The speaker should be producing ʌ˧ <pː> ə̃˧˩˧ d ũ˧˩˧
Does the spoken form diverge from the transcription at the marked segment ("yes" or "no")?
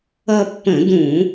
no